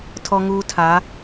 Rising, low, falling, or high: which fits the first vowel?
high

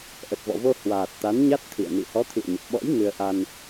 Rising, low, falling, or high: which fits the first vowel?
low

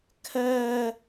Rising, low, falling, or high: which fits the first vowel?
high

